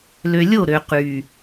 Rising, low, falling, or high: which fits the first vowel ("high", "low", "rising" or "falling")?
low